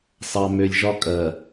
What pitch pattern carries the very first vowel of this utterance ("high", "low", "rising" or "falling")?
low